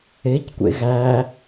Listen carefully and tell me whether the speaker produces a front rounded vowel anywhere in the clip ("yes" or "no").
no